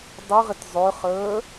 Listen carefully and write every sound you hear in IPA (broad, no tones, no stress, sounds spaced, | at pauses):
dˤ y ʁ ɪ t zˤ ø χ əː